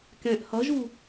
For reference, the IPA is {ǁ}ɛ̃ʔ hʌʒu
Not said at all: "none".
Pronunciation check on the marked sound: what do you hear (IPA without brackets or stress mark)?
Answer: k